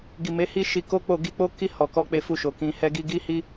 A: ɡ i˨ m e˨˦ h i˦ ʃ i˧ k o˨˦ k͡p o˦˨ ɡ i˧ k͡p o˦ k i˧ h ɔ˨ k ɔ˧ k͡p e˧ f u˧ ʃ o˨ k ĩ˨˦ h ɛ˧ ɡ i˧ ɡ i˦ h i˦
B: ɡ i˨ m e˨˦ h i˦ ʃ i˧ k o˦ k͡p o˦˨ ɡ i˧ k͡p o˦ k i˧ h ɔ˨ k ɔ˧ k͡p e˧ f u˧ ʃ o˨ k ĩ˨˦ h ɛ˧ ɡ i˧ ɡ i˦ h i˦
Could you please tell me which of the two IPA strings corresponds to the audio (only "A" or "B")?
B